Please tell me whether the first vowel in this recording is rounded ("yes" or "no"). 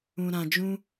yes